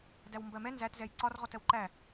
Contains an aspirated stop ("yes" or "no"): no